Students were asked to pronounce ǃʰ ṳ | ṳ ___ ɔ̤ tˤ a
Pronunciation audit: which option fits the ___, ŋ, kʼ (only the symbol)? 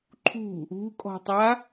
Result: kʼ